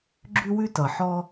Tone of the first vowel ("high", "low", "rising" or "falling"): high